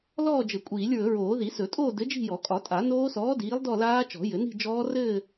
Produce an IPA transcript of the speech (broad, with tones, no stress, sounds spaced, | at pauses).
l ɔː˥˧ d͡ʒ ɘ˨˩˦ kʷʼ iː˨˩˦ lʲ ɹ ɵ˨˩˦ ɹ oː˨˩˦ ð i˨˩˦ s ɵ˨˩˦ tʼ oː˥˧ d ɘ˨˥ d͡ʒ i̤˥˧ j ɔ˨˩˦ kʼ ɒ˨˩˦ tʼ a˨˩˦ n oː˦˥ s ɔː˨˥ d iː˨˥ lˠ d ɔ˥˧ l aː˦˥ t͡ʃ ɔ̤˨˩˦ j ɘ˨˩˦ n i̤˥˧ d͡ʒ ɔː˦˥ r ɘː˥˧